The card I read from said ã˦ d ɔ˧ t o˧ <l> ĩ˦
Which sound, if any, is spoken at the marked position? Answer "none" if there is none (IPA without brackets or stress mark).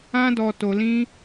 l